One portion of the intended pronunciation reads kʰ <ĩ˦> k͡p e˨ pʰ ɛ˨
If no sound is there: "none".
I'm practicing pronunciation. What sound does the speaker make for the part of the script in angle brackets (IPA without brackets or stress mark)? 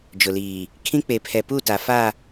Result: ĩ˦